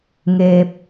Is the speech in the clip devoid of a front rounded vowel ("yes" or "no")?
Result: yes